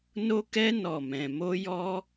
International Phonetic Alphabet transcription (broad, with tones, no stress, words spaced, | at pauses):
no˦kɛ˦ nɔ˦˨mɛ̃˧ mo˦jɔ˦